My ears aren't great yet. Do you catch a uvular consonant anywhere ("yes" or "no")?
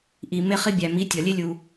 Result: yes